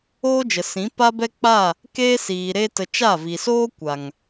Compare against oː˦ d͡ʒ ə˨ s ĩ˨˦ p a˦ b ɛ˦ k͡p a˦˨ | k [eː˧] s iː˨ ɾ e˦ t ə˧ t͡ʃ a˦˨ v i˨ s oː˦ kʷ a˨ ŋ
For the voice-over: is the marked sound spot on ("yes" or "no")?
no